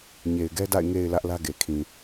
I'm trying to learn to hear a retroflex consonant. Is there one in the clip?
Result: no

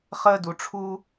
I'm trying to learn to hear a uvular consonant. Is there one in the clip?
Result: yes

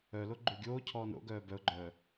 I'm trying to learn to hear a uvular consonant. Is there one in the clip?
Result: no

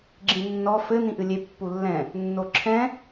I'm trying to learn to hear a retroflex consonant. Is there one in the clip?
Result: no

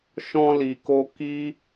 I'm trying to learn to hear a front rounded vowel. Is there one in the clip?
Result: no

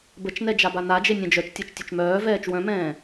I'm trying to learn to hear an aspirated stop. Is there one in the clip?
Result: no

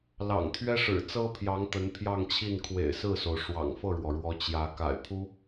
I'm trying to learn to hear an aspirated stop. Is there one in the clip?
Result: yes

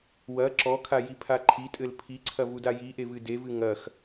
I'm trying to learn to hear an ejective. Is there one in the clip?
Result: yes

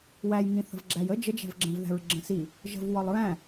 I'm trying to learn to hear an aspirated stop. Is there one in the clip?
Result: no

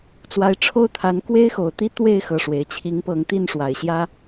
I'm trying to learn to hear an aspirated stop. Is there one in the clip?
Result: yes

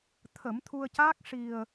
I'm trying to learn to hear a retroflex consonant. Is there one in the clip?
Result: yes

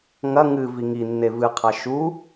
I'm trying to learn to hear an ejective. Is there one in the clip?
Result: no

